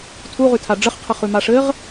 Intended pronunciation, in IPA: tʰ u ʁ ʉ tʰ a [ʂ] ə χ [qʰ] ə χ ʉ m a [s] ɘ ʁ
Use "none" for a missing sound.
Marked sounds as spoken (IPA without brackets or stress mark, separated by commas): ɖ͡ʐ, qʰ, ʂ